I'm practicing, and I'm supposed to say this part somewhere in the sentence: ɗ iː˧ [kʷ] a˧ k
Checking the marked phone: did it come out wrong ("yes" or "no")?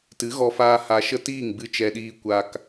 no